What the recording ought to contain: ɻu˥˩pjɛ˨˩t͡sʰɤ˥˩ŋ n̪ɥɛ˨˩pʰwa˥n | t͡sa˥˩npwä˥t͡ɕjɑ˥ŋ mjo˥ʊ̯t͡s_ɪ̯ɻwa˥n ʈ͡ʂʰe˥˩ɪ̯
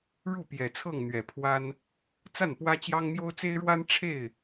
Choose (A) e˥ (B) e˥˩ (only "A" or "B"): A